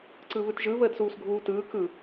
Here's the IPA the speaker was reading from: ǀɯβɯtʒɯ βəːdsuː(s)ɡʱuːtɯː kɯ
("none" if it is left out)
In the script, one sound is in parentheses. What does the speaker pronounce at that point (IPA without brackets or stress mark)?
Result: s